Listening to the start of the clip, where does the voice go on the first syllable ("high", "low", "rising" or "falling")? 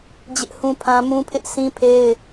high